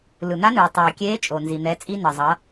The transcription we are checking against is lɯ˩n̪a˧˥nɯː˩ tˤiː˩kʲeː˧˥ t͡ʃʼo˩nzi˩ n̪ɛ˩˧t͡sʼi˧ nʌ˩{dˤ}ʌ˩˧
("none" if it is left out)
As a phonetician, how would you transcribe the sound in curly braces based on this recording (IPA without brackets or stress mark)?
zˤ